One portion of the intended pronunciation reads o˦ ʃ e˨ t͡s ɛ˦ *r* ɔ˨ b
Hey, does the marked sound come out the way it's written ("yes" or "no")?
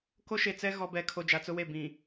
no